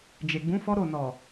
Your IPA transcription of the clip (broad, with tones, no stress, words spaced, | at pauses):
d͡ʒe˨ɡ͡bũ˨˦ fɔ˦ɾo˦˨ nɔ˨